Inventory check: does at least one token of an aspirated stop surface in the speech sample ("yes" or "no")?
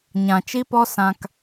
no